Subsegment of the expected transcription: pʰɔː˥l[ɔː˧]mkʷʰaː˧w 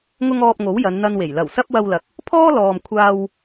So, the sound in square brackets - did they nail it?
no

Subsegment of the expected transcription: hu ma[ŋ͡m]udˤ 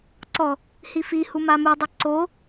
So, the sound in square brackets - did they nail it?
no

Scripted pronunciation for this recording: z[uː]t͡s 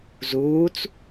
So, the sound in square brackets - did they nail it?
yes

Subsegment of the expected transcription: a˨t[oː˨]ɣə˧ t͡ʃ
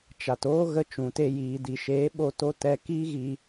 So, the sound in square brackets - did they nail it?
no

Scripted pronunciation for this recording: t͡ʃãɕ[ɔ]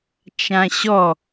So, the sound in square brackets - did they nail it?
yes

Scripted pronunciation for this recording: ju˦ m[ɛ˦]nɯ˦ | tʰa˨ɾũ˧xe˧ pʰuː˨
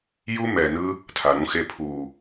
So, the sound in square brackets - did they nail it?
no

